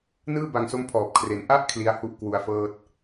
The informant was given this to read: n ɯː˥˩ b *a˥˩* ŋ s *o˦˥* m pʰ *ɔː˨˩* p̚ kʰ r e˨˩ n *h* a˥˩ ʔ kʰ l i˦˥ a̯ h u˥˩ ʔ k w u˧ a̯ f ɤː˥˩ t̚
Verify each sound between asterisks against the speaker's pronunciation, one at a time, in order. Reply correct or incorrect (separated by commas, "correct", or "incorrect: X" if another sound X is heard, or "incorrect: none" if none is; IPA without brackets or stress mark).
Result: incorrect: a˨˩, correct, correct, incorrect: ʔ